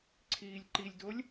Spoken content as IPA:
ǀʰ iː lʲ ǃ i lʲ d o lʲ

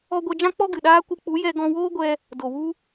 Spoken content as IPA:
ɔ˧ ɡʷ ɛ˧ d͡ʒ ã˦ k͡p ɔ˦ ɡ ɨ˨ ɗ aː˦ kʷ ɨ˧ k͡p u˨˦ j ɛ˧ ɡ ɔ̃˧ w oː˦ ɡʷ ɛ˧ | d o˨ w u˦

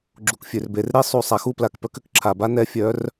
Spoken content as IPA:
ɡ͡ǁ u˨ k fʲ ø˨ r b e˨ r ɾ e˦ sˤ u˨ sˤ a˨ x u˦ p l a˨ k p œ˦ k ʏ˨ k ǁʰ a˨ b a˦ n ɛ˦ fʲ œ˨˦ r

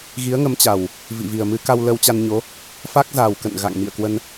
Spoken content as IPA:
ɣ i˨˦ ə̯ ŋ ə˨˦ m t͡ɕ a˨˩ w | v ḭ˧˨ v i˨˩ ə̯ m ɨ˧ k a˧ w l ə˧ w t͡ɕ a˧ n ɲ o˨˦ | f a˦˥ k̚ z a˨˩ w k ə̰˧˨ n ɣ a̰˧˨ ŋ m ḭ˧˨ ə̯ k w ə˧ n

